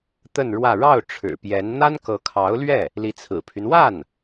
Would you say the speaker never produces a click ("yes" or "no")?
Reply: yes